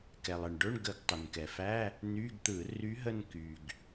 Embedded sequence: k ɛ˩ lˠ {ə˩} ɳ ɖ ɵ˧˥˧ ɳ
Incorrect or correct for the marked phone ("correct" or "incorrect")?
correct